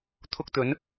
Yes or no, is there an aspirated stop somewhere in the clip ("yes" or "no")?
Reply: yes